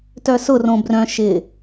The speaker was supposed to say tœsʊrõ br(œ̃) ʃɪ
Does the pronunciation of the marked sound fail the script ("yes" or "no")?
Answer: no